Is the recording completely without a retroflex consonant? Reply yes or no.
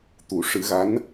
no